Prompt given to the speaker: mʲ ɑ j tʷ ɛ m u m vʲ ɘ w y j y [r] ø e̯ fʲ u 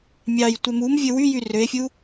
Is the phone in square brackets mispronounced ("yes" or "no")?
no